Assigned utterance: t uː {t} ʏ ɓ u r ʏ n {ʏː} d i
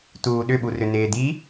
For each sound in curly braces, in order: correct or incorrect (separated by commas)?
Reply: incorrect, incorrect